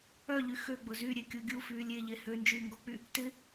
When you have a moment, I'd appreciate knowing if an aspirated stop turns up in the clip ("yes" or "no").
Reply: no